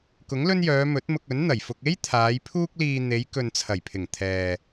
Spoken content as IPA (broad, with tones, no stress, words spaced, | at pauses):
kʊ˨˥ŋlɵ˥njœː˨˧ mɵ˨˥t̚mʊ˧k̚ ɵ˨˥nn̪ɐ˨˩jfʊ˧k̚ e˥j t̪ʰaː˨˧jpʰuː˥k̚liː˧ n̪e˨˧j kɵ˨nt͡sʰɐ˨˩jpʰɪ˨˩ŋ t̪ʰɛː˨